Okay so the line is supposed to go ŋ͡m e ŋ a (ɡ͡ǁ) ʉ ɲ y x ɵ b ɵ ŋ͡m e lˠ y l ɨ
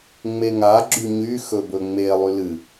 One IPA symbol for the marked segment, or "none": ɡ͡ǁ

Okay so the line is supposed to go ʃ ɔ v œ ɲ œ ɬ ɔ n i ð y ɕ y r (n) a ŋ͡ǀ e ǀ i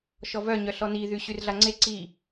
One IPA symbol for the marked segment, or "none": ɮ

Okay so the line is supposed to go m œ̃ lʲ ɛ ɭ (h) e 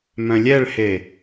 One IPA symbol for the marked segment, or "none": h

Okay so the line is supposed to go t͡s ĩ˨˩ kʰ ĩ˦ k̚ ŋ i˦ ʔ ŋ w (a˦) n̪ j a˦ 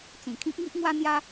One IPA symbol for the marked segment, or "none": a˦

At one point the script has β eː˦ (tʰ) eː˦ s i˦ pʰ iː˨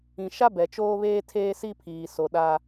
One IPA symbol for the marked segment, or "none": tʰ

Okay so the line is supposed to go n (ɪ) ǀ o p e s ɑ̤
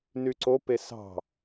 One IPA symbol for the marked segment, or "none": y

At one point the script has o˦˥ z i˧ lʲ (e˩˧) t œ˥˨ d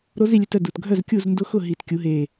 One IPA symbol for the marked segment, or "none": e˧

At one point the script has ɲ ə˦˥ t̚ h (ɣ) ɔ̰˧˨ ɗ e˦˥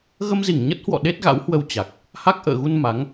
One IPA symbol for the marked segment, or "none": w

